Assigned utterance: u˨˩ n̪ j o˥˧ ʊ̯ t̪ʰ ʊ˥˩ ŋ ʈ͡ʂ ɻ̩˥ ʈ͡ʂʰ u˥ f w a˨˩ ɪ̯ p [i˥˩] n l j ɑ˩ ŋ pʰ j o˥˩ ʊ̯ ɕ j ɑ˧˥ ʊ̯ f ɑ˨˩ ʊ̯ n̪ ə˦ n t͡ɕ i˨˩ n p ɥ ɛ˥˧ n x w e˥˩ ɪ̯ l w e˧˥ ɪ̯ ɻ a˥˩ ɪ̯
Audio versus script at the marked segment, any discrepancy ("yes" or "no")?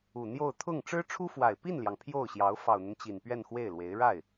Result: no